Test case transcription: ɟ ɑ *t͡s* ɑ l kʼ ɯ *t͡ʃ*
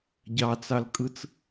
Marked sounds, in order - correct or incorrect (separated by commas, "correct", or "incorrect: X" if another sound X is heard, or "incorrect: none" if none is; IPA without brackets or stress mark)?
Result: correct, incorrect: t͡s